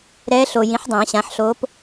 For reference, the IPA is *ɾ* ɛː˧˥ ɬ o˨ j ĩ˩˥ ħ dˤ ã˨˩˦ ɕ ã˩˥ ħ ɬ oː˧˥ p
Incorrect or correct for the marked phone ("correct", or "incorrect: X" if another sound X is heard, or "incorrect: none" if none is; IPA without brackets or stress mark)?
correct